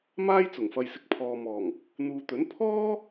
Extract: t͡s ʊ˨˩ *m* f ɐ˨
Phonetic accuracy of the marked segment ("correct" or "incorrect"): incorrect